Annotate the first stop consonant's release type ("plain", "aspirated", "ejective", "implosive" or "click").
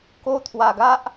plain